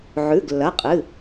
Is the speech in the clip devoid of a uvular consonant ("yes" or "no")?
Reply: no